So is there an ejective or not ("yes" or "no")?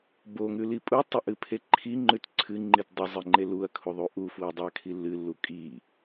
yes